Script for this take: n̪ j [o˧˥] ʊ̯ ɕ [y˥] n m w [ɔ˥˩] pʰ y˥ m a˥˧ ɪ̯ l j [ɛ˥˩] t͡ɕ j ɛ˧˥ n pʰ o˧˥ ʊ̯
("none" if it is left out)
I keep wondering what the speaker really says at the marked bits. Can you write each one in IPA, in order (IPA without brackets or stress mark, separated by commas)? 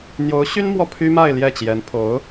o˧˥, y˥, ɔ˥˩, ɛ˥˩